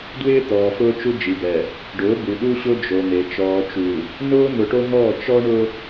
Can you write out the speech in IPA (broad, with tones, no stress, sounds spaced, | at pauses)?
d w ɪː˦ t̪ ɔː˨ f ʊː˦ t͡ʃ u˦ d͡ʒ i˨ b ɛ˨ | ɖ ʊː˨˦ b u˨ ɗ u˦ ɕ ʊ˦ d͡ʒ o˨ n̪ e˨ t͡ʃ ɔː˨ t͡ʃ u˨ | n ʊː˦ n̪ ʊ˨ ʈ o˦ ŋ ɔː˦˨ t͡ʃ ɔ˦ ɳ ʊ˦